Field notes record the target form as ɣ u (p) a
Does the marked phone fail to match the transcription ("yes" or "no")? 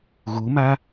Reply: yes